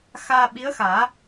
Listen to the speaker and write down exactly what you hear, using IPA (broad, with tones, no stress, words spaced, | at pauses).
xaː˧ɓi˧˥ə̯xaː˨˩˦